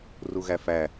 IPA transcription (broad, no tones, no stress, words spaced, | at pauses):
ruɣæfæ